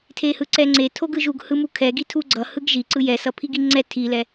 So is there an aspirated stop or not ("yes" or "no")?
yes